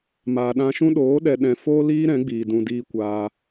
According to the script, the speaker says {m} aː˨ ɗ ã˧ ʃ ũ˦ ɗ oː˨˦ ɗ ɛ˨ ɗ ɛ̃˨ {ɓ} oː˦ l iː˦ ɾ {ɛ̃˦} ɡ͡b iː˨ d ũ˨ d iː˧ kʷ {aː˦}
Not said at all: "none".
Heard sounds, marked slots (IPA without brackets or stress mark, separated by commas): m, f, ɛ̃˨˦, aː˧